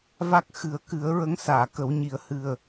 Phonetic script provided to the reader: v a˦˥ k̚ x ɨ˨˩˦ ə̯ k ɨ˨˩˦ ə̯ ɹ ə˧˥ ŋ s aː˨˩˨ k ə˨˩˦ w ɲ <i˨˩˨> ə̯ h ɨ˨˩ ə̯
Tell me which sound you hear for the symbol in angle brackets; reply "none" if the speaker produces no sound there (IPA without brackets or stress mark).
i˨˩˦